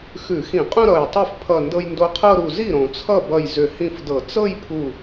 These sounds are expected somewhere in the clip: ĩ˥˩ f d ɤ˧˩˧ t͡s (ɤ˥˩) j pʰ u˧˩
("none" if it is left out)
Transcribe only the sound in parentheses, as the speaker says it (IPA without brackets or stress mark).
ɤ˥˧